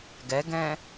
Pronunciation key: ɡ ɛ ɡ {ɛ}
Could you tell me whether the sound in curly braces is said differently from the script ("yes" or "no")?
yes